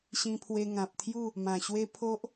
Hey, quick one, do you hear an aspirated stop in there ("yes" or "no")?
yes